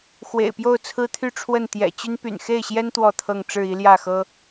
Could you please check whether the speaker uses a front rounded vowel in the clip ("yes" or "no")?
yes